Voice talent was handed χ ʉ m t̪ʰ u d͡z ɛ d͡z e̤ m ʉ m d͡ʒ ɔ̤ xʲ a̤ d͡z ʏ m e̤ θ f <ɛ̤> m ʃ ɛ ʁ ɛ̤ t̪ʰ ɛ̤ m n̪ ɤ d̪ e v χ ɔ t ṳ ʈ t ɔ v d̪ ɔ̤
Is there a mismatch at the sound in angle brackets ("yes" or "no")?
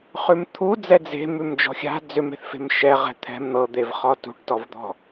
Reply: yes